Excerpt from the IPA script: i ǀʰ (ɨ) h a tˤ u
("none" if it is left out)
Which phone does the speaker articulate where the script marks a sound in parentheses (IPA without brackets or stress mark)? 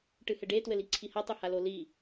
i